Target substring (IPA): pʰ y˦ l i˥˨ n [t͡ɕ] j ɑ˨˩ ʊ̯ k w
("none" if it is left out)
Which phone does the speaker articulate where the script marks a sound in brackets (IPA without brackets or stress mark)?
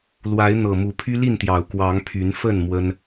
t̪